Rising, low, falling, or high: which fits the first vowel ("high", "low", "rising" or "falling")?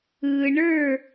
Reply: low